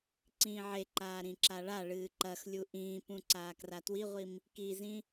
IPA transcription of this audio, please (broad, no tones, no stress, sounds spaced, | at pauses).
ǀ ĩː ʕ e ǃ aː ɾ ĩ ǁ a ɭ a ɭ ɨː ǃ ɐ x lʲ u ʔ ĩː p ũ ǀ aː k r a t w i ʁʷ i m | k i z ĩ